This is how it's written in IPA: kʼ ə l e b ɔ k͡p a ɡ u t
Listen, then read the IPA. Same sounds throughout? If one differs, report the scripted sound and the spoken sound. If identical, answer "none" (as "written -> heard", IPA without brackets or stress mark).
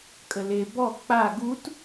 none